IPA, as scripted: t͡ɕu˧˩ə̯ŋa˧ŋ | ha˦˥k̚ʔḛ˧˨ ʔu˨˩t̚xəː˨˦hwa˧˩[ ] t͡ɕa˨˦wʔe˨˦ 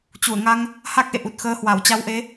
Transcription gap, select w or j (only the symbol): w